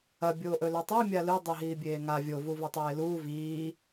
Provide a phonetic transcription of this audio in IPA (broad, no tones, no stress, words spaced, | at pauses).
ɐ bʲoːʔɵlɵtˤi mʲalɨ dˤiɦiːbʲeːŋa vʲo vuvɐtˤeːluː viː